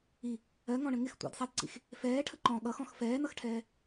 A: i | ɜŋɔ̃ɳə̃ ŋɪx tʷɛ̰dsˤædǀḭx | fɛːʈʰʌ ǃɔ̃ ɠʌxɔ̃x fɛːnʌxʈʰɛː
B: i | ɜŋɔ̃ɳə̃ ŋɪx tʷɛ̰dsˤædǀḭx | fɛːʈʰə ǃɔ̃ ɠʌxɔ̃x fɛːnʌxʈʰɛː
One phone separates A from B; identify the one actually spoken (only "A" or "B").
B